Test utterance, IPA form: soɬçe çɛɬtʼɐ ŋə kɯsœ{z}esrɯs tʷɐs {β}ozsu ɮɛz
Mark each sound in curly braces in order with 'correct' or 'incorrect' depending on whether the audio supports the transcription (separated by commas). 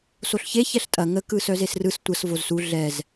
correct, incorrect